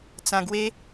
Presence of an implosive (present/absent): absent